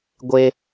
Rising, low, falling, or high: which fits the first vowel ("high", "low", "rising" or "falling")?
high